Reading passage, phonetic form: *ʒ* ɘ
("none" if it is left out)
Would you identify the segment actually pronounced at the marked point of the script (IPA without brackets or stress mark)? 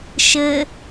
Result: ʃ